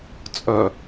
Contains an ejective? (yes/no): yes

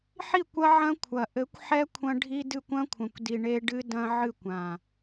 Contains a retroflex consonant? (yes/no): yes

